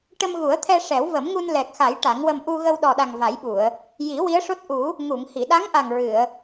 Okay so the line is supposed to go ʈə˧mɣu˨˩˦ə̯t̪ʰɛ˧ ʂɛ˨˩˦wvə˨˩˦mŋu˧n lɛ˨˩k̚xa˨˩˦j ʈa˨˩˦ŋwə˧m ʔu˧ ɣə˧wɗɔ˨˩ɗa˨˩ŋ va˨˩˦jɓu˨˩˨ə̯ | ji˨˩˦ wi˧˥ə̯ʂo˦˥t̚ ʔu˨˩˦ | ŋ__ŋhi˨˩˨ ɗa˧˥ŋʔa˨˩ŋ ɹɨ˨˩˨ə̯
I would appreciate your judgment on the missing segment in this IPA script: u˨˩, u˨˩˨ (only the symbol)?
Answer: u˨˩˨